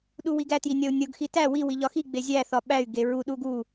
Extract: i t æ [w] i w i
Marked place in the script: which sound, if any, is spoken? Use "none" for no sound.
w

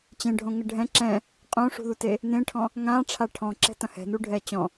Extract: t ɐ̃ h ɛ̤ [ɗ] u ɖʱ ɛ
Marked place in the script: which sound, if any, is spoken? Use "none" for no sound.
n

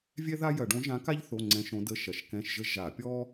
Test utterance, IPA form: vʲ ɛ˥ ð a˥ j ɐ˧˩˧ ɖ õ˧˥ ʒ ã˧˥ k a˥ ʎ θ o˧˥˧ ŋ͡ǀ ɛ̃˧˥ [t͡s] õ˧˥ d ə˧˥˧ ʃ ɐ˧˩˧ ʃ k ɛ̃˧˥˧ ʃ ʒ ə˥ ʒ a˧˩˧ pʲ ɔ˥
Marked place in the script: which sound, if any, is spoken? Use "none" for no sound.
ʃ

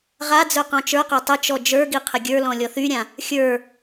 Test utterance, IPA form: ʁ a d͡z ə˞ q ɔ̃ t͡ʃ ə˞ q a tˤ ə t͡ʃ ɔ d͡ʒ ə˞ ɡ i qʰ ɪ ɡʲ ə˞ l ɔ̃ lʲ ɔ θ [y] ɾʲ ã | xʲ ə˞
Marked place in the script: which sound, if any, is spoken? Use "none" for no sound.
y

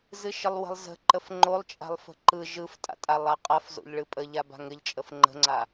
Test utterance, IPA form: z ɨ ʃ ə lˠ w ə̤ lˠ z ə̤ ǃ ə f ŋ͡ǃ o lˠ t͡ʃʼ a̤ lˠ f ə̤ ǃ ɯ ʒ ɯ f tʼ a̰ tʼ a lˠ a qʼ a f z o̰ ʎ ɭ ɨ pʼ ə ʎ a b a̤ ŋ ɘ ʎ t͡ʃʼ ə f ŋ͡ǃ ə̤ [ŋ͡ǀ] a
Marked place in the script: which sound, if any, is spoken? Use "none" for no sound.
ŋ͡ǀ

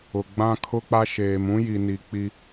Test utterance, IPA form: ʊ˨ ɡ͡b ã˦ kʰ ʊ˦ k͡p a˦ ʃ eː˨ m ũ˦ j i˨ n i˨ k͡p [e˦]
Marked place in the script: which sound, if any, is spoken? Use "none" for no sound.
i˦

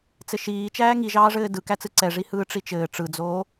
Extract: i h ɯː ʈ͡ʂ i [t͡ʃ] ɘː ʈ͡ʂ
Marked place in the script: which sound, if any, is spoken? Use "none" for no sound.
t͡ʃ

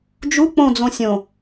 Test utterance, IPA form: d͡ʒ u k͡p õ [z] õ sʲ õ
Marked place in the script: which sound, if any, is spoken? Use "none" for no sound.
d͡z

